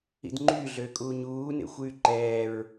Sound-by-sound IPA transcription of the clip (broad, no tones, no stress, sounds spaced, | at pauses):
ḭ d ŋ͡ǃ y ɮ øː kʼ uː ɲ uː n ḛ xʷ yː ǃ ɛː ɹ